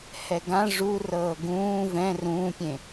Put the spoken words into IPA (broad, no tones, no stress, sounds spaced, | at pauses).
h ɛ ɡ ã ʐ u r ɤː ɡ ũː v ɛ̃ r ũː pʲ ẽ